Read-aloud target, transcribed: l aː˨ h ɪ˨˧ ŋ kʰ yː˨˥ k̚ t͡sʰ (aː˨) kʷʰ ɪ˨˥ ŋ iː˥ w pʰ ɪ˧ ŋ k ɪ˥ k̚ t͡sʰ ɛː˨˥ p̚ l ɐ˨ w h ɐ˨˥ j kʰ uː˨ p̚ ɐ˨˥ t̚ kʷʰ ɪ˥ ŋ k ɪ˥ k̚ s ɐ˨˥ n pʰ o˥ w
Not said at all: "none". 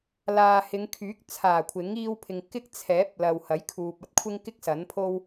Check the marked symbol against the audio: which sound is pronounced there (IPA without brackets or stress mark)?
aː˨˩